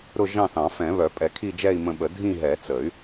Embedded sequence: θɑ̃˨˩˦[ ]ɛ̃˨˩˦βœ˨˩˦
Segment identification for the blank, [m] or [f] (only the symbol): f